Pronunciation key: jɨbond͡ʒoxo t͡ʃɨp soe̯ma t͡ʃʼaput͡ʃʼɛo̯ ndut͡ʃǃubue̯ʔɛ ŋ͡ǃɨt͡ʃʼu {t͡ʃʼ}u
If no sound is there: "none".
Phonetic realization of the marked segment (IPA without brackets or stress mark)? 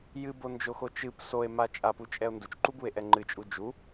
d͡ʒ